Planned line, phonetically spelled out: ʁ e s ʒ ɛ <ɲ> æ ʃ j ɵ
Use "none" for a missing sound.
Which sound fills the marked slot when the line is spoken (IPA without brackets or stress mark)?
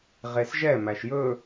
m